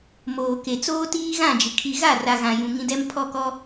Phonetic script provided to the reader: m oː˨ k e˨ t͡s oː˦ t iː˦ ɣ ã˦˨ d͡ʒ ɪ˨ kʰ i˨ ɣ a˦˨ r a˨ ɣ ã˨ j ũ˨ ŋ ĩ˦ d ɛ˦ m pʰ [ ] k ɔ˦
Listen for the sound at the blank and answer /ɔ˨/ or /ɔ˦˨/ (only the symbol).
ɔ˦˨